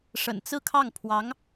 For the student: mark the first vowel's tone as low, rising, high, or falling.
low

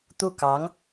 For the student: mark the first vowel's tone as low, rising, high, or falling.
falling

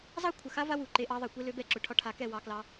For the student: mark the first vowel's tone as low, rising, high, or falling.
high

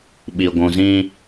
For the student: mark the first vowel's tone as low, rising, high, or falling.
low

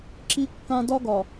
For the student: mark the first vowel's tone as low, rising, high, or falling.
high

